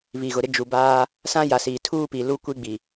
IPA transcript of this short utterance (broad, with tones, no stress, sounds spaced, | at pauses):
β i˨ ɣ ʊ˨ ɾ ɪ˦ d͡ʒ u˨ b aː˦ | s ã˦ j a˨ s iː˨ tʰ uː˦ p i˨ l u˦ kʷ i˦ ɡ͡b i˨